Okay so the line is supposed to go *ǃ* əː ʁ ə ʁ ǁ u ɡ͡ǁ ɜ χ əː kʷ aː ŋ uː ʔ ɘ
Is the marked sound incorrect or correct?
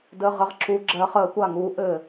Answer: incorrect